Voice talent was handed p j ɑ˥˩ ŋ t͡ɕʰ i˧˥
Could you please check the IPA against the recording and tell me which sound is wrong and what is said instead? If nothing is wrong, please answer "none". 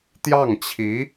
p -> t̪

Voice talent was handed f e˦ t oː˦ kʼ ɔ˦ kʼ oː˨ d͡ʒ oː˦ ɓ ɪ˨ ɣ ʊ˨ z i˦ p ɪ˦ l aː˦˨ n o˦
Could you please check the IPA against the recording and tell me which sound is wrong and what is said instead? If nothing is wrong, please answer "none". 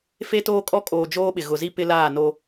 none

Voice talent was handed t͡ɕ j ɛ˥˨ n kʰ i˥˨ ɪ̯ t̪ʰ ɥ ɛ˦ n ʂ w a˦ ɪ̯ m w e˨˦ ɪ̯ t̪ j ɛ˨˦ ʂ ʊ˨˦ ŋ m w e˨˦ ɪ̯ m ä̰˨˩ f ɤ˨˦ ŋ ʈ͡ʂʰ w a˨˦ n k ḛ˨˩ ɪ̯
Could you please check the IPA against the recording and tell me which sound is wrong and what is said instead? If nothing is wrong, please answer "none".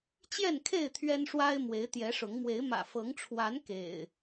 i˥˨ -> e˥˨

